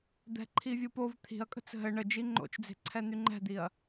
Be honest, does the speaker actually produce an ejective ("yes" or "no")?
yes